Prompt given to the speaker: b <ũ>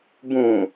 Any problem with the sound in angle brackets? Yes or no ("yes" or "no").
no